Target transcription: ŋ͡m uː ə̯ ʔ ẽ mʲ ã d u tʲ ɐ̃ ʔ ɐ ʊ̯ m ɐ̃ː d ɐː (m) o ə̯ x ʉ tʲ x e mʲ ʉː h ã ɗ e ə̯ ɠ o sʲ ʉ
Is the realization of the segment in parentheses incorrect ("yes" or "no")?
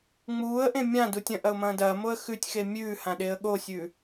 no